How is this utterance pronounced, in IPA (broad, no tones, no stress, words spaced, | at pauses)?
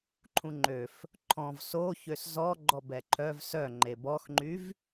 ǃʰũŋ͡ǃøf | ǃʰɔ̃v soçøs zɔ ɡ͡ǃɔbɛǃʰœv sœ ŋ͡ǃebɔxŋ͡ǃyv